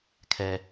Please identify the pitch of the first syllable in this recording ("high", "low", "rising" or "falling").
low